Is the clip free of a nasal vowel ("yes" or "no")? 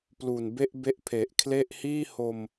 yes